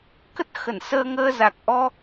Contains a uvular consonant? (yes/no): no